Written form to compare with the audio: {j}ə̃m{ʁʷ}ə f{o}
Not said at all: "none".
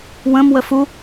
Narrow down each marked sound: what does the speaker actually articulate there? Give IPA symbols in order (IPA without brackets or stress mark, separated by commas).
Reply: w, w, u